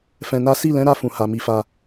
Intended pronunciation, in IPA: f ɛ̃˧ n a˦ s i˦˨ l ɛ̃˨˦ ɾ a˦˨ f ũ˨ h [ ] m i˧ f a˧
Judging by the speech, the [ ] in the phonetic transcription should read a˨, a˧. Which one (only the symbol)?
a˨